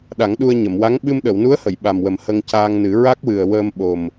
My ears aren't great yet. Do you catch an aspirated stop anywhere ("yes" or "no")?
no